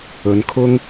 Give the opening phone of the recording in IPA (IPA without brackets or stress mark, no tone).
ɵ